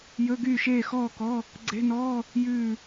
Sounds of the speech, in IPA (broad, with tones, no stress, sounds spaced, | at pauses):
j ɵ˧˥˧ ɡ yː˥˨ ʃ eː˥˨ x ɔː˥˨ k ɔ˧˥˧ | ɡ͡ǀ e̤˧˥˧ n ɔː˧˥˧ | j ʉː˥˨